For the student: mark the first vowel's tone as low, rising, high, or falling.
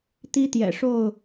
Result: high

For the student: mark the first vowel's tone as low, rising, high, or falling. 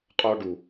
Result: high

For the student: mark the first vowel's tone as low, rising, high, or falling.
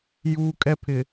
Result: high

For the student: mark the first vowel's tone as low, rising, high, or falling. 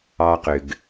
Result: high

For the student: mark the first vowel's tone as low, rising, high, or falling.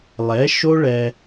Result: rising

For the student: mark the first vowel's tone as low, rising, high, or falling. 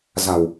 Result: low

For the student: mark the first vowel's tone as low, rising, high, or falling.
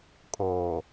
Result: low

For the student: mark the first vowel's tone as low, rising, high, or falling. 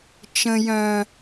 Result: high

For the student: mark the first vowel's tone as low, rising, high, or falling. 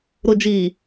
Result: low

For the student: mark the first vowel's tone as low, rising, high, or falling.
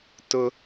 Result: high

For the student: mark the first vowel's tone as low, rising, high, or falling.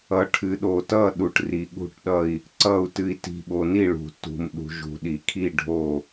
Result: low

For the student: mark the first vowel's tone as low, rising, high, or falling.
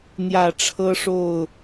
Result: low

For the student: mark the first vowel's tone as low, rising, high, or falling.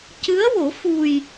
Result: rising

